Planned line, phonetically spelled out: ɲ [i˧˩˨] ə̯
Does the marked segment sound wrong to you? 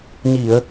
no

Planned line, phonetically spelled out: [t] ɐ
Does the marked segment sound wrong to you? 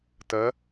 no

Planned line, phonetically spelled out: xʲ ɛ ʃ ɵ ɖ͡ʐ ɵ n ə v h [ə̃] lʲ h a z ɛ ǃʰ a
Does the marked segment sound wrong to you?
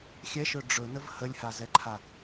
yes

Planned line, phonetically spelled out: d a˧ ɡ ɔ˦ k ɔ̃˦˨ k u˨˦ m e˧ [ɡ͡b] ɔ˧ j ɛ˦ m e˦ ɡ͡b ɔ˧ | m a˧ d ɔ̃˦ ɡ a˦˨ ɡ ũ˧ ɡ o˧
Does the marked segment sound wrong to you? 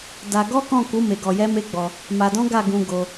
yes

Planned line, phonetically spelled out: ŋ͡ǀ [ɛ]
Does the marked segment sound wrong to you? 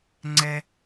no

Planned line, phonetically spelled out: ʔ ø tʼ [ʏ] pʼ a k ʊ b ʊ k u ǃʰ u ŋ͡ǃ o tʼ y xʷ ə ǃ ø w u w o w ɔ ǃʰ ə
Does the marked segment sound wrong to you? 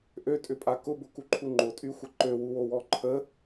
no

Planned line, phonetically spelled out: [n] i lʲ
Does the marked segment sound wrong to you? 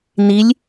no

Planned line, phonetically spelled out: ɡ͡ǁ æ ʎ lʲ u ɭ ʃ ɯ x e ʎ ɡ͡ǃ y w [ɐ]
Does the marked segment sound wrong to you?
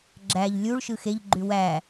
yes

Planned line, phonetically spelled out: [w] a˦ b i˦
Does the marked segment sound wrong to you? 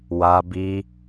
no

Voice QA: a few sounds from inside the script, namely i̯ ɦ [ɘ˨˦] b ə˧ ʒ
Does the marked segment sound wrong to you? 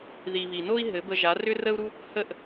no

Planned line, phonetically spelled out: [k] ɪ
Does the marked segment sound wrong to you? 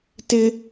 yes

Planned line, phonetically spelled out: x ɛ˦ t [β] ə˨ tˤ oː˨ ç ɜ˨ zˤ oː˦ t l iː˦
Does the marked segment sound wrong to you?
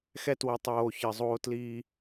yes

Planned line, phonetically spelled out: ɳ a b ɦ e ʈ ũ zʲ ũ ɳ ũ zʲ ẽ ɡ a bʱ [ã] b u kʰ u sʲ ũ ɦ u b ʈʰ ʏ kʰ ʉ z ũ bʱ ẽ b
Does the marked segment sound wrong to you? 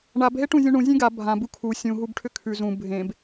no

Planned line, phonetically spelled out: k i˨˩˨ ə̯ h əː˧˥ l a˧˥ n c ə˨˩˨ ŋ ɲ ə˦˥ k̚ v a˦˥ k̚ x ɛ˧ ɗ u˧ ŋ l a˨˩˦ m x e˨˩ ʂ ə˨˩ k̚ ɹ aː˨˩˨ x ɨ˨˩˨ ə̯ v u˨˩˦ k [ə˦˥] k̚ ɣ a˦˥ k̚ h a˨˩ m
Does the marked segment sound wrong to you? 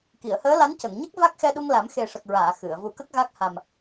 no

